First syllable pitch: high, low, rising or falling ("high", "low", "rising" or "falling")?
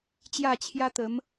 falling